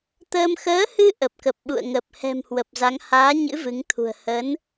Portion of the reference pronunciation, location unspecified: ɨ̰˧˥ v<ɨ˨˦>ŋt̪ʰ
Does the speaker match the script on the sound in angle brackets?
yes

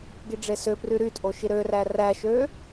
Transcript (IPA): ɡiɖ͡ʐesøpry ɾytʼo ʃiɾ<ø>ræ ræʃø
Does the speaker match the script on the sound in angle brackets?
yes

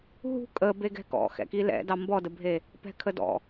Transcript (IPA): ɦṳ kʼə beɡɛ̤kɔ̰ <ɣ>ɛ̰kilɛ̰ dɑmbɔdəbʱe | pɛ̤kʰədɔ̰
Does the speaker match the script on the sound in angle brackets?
no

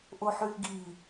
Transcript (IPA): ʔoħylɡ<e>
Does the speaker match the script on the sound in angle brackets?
no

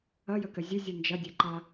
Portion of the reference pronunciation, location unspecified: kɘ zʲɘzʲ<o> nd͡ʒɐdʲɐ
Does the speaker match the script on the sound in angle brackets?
no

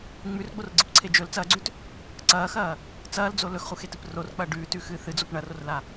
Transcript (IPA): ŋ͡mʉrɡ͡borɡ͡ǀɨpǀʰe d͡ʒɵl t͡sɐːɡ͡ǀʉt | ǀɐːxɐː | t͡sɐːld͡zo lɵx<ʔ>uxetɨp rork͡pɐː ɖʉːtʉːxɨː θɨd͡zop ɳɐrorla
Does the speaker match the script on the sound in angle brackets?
no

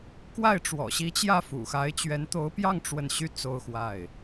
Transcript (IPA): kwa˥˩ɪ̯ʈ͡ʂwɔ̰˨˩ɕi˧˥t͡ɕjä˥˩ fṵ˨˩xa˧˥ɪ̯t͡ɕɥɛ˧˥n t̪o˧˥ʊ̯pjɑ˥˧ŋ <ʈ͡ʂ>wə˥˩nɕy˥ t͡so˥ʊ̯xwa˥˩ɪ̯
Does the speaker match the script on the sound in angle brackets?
yes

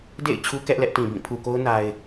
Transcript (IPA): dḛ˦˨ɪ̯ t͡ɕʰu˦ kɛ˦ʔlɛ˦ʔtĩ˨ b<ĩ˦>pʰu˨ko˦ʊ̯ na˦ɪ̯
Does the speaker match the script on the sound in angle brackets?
no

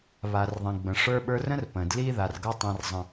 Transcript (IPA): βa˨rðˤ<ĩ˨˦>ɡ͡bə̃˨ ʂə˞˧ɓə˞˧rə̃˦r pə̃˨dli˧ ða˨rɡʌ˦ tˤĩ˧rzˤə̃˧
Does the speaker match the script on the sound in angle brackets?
no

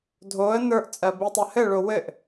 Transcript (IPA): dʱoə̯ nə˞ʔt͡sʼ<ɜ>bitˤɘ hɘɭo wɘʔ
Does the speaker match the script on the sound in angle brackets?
yes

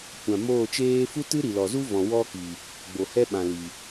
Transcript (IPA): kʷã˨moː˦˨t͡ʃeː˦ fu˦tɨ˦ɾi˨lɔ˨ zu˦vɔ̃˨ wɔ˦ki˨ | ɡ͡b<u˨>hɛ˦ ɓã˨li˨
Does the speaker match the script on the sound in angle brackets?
no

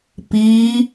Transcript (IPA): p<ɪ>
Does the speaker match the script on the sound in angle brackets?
no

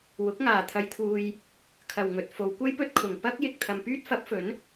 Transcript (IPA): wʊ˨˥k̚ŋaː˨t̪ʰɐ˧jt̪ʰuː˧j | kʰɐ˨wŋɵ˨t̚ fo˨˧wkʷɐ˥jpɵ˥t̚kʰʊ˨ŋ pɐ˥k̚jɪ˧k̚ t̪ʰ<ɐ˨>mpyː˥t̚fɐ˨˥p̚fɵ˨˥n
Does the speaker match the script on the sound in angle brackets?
yes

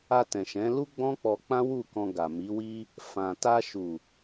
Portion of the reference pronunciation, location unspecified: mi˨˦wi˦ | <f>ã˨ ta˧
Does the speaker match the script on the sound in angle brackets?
yes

